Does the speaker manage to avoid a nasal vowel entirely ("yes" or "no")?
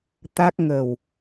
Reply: yes